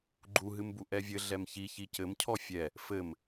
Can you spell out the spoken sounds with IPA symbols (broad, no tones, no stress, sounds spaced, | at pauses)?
ɡ͡ǃ u ɦ ɨ m b u ʔ ɛ vʲ ɘ ɮ ɛ m ç i ç i c ɘ m cʰ ɔ fʲ ɛ | f ɘ m